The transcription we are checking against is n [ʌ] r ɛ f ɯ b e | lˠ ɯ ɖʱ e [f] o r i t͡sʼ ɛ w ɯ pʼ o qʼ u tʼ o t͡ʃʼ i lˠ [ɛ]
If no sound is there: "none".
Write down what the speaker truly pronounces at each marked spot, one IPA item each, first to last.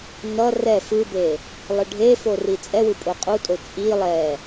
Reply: ʌ, f, ɛ

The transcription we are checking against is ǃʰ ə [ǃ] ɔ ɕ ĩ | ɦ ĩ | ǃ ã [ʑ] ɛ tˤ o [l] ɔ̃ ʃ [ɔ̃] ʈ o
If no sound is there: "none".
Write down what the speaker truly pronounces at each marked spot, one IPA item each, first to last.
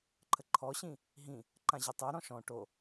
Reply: ǃʰ, ʑ, ɾ, ɔ̃

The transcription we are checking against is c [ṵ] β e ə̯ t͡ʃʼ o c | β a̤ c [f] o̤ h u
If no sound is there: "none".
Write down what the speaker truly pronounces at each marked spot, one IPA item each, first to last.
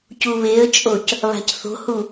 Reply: u, θ

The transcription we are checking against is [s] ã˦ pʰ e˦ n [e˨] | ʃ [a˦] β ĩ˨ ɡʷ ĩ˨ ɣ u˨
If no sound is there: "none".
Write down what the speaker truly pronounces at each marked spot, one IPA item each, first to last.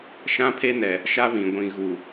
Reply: ʃ, ɛ˨, a˦

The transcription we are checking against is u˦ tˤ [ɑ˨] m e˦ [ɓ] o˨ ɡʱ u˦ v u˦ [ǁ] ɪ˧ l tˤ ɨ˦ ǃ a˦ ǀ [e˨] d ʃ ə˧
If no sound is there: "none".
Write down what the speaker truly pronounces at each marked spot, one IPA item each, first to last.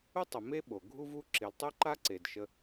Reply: ə˨, ɓ, ǁ, e˨

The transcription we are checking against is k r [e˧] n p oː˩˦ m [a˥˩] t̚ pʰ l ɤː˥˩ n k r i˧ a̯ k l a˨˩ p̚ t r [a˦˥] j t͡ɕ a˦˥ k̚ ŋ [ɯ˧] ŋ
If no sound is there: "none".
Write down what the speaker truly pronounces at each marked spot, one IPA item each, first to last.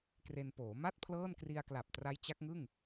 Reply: e˧, a˥˩, a˦˥, ɯ˥˩

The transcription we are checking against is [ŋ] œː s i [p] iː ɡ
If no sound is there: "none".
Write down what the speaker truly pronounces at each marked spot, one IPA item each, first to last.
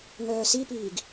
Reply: ŋ, p

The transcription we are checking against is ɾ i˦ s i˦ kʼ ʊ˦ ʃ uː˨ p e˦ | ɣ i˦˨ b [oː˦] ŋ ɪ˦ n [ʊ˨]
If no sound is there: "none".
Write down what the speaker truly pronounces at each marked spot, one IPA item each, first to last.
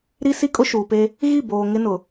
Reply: oː˨, ʊ˨

